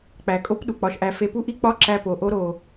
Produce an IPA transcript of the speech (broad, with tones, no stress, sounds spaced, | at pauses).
k͡p æ˨ kʼ o˦ p ɗ u˨ k͡p ɒ˧ ʃ ʔ æ˧ f e˧ p u˦ ʔ i˦ k͡p ɒ˦ ǁ æ˧ p o˨ ʔ o˦ ɾ o˧